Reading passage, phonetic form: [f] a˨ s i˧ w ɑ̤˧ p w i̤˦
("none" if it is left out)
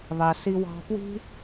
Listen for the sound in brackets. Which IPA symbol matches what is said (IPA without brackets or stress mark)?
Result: β